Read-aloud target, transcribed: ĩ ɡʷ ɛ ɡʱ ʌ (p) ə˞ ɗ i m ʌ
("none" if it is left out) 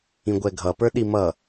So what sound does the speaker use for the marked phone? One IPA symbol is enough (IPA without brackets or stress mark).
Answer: p